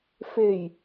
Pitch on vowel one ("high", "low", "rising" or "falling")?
low